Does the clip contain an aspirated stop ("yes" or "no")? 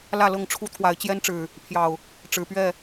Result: yes